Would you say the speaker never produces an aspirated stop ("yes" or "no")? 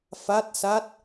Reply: yes